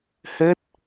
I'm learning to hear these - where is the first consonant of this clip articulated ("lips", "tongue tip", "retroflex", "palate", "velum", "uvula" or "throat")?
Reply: throat